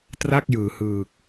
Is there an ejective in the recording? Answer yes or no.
no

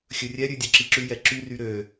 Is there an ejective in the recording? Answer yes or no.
no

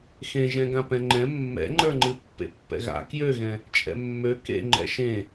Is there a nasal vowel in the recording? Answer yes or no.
yes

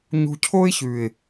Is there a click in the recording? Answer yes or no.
no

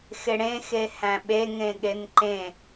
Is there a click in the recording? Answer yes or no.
yes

